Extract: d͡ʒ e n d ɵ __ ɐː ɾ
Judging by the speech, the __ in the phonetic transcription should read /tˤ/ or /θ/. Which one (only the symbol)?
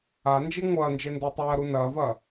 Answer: tˤ